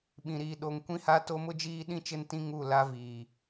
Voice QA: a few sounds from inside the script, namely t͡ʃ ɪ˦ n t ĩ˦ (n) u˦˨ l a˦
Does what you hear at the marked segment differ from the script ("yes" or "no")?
yes